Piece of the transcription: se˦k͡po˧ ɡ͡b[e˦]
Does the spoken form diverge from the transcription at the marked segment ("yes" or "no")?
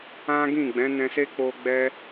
yes